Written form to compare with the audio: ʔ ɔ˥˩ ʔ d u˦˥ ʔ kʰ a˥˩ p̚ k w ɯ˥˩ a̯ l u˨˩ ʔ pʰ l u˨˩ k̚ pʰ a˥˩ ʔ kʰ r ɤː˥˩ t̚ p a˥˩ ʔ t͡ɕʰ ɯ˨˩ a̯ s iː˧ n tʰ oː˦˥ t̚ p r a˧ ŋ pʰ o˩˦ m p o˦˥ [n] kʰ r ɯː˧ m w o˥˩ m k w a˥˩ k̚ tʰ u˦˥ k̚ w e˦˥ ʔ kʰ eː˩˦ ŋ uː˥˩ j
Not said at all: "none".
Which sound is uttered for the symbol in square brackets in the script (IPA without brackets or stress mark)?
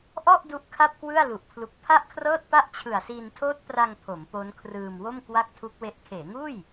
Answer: n